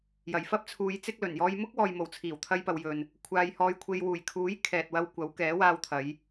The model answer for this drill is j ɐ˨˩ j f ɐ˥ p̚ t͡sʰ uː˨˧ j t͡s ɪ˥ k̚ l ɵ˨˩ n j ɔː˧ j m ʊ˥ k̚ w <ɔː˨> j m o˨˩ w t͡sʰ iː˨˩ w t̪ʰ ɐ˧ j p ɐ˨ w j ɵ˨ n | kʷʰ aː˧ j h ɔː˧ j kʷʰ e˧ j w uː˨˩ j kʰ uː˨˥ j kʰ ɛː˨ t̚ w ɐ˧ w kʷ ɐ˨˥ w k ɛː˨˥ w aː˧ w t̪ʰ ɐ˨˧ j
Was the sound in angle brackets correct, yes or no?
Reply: yes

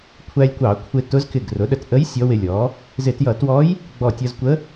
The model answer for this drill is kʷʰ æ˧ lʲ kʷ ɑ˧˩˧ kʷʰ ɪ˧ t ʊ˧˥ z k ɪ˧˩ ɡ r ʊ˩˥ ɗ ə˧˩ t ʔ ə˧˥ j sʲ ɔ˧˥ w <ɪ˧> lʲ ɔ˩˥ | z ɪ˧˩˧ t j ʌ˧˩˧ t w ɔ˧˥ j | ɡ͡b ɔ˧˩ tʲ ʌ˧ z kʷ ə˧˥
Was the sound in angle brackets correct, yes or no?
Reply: yes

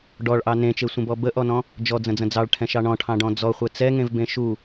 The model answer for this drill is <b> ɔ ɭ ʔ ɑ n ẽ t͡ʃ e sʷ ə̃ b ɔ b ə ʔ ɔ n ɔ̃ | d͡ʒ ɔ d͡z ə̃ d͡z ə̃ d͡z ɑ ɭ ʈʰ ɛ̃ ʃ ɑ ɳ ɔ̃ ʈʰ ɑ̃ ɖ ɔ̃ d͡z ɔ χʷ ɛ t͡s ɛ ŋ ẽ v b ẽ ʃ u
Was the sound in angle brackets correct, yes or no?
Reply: no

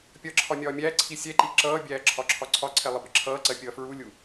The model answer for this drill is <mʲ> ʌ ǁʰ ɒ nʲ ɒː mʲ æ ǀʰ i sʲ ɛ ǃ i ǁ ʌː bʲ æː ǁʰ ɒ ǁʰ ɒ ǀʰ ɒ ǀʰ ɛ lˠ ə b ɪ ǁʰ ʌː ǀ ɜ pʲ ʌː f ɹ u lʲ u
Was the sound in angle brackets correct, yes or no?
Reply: no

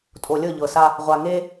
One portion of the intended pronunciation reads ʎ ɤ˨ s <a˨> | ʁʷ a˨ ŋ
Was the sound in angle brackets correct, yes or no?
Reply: no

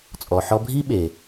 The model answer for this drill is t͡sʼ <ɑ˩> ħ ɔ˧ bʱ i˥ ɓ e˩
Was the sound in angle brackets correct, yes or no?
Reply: no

